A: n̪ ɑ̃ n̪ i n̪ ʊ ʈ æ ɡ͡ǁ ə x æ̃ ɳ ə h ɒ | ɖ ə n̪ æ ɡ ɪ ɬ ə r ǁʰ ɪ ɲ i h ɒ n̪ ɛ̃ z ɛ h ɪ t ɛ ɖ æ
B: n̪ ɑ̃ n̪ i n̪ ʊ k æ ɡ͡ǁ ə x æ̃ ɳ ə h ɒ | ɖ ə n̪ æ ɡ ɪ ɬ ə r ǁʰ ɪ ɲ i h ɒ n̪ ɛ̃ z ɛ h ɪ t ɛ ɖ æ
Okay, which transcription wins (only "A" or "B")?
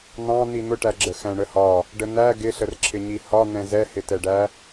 A